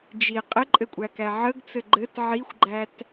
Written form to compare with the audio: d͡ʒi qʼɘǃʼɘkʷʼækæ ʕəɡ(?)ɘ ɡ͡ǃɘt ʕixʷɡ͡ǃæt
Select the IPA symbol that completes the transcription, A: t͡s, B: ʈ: A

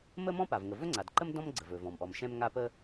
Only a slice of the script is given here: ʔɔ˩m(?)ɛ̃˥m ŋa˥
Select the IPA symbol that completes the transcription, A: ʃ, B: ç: A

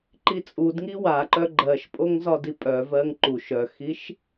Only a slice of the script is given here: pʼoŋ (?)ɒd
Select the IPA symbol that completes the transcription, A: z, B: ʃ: A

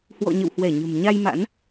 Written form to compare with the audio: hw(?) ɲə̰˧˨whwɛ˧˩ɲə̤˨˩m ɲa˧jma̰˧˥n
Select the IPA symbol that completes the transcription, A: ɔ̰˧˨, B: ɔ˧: A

